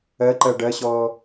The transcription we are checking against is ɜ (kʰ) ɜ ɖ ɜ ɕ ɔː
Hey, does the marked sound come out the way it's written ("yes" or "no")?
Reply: no